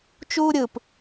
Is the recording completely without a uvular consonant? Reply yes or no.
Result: yes